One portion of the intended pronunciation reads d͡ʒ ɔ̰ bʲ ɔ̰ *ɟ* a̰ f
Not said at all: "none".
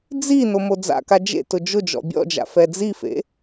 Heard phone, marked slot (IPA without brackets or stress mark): d͡ʒ